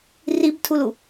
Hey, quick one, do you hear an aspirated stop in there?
yes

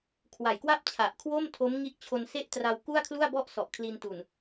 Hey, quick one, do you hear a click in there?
no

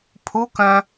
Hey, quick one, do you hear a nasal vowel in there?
yes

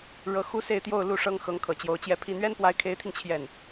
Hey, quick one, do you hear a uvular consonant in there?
no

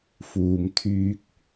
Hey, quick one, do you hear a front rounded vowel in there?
yes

